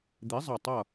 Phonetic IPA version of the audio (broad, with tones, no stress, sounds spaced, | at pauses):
d̪ i˨˥ zˤ ʌ˧˩ tˤ ʌ˧˩